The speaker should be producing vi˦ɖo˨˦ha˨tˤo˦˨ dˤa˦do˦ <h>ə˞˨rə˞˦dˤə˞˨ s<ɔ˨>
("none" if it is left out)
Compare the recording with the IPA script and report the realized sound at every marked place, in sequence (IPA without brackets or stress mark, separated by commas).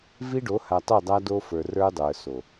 f, o˨